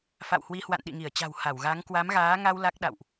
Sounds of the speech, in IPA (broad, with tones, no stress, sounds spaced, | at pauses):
f a̰˧˨ w h w i˨˦ h w a̰˧˨ n ɗ ḭ˧˨ ŋ i˧˩ ə̯ t͡ɕ a̤˨˩ w h a˧˩ w ɣ a˨˦ ŋ k w a˨˦ m ɣ aː˨˦ ŋ a˧ w l a˦˥ k̚ ɗ a̰˧˨ w ʔ